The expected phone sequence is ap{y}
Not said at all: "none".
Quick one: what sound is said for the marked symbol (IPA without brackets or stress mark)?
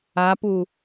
u